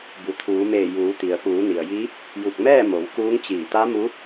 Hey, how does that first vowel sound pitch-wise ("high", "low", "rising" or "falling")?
low